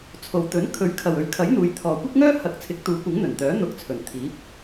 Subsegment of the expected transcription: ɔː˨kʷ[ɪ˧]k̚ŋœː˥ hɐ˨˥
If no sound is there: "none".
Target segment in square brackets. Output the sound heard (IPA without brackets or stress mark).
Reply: ɪ˥